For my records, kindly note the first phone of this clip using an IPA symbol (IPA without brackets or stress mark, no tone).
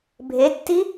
bʱ